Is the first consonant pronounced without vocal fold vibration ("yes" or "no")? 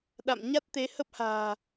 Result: no